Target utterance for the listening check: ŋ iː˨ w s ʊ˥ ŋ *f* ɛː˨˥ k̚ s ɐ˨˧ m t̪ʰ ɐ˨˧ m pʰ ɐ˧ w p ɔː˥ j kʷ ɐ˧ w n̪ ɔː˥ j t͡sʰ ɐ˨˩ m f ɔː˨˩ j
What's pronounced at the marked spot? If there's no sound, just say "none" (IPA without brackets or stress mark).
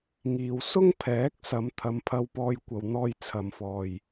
pʰ